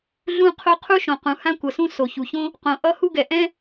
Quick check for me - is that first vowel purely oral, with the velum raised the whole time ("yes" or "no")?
no